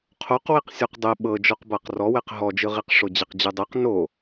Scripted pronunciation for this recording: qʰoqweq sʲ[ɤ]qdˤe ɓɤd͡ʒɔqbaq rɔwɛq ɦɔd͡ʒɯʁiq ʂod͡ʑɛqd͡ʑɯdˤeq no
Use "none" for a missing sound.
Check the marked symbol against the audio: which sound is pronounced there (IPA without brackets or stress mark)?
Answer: ɔ